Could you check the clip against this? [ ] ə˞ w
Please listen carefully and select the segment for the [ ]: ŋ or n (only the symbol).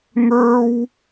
ŋ